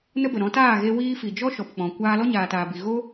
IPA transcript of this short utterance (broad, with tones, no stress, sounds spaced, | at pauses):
n ə˦ b ə˨ ɾ ɔ̃˨˦ t aː˦˨ ɣ e˧ w iː˦ f i˨ d͡ʒ ɔ˦ ʃ ɔ˨ p k͡p ɔ̃˨ kʷ aː˧ l ɔ˦ ɲ aː˨ t aː˨ b i˨ ɣ o˦